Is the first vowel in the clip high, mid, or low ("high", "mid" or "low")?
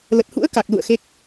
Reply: mid